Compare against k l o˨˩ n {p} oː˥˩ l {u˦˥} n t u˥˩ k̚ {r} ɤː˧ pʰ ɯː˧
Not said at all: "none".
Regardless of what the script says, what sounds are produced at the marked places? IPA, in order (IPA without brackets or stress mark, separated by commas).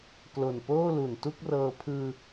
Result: p, u˨˩, r